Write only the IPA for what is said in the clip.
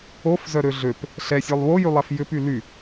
o f z œ ɾ ø ɮ ø p | ɬ ɛ sʲ œ lˠ w o j y lˠ ɛ f j ʏ p y l y

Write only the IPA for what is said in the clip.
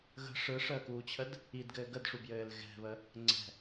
ɣ ə̤ ʂ ɯ ʂ əː k uː t͡ɕʰ ə d | i d ɡ ɘː ɡ ə d ʂ u b j ɘː l ɣ ɛ̤ β ə | ŋ͡ǀ ɛ̤

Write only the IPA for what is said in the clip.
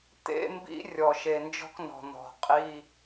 t̪ ḛ˧˥˧ m b ḭ˧˥ rʲ ɔ˨˩ ʃ e˨˩ n d͡ʒ ɔ̤˥ k n ɔ̤˨˩ n̪ ɔ̤˨˩ qʼ i˧˥˧

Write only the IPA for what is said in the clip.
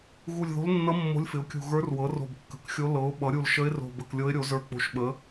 ɣ u˧˩ lʲ ð o̤˧˥ l nː ʌ˧˥ mː o̤˧˥ lʲ f ɪ˩˥ ʊ̯ kʲ ṳ˧˩ ɣ ə˞˧˥ r w ɤ˩˥ r o̤˧˩ b kː ə̤˩˥ k xʲ o˧˥ l ɤ˩˥ ʊ̯ ɓ ʌ˩˥ ɾʲ u˧˩ l ʃ ə˧˥ ɪ̯ r o̤˧˩ b ə˧˩ k lʲ ɤ˧˥ ɪ̯ ɾʲ o˩˥ z ə˞˧˩ k͡p o̤˧˩ ʃ ɓ ə˩˥

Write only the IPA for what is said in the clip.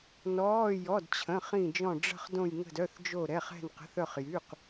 n ɔː˩˧˩ j ɔ˩˧˩ d t͡ɕʰ ə̃˩˧˩ χ ĩ˧˩ d͡ʒ ɔ̃˧˩ ɖ͡ʐ ə̤˧˩ χ d õ˧˩ j ŋ ə̤˧˩ d œ˩˧˩ θ d͡ʒ o˧˩ ɾ ɛ˩˧˩ χ ɛ̤˧˩ n q ə̤˩˧˩ θ œ˧˩ χ j y˩˧˩ q

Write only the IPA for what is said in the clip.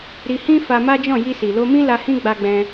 ɾ i˧ h ĩ˦ f a˧ m a˦ d͡ʒ ɔ̃˦˨ j i˧ s i˨ l o˧ m ĩ˦ l a˧ h ĩ˦ ɡ͡b a˧ ɡ͡b ɛ̃˧

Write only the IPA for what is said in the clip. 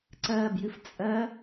ǀ ɜː b j ɨ f t͡sʼ ɜ

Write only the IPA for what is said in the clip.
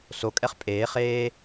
s o kʼ ɛ χ pʼ eː χ eː

